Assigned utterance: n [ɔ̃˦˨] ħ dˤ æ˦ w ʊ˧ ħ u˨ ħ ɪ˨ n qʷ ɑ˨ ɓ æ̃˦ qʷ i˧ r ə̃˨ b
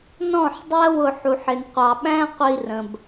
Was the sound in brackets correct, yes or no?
yes